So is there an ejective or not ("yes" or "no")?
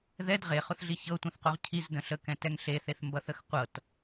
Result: no